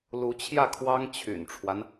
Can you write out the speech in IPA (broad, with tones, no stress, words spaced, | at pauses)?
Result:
lu˧˥t͡ɕʰjä˥˩kʰwɑ˥ŋ t͡ɕʰy̰˨˩nʈ͡ʂʰwa˦n